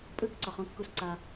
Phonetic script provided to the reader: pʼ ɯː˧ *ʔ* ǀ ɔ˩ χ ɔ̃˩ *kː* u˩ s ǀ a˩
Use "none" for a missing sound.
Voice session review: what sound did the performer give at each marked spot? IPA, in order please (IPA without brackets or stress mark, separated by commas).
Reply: k, kː